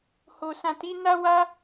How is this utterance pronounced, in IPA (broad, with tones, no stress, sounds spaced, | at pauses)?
h o˨ s ã˨ t i˨˦ n a˦ w a˦